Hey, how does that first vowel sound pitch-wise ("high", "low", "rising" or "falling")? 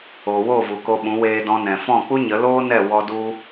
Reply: low